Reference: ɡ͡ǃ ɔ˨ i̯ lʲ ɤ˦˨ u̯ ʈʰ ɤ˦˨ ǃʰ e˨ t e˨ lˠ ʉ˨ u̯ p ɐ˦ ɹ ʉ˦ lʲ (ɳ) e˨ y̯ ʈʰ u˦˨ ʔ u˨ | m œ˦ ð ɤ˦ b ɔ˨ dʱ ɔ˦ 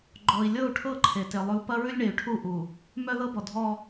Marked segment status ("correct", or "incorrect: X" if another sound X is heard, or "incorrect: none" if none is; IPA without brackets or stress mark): correct